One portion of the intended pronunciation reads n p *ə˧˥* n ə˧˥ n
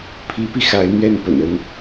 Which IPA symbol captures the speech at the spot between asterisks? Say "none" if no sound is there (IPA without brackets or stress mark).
ə̰˨˩